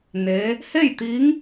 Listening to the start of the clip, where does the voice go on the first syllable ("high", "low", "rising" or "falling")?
rising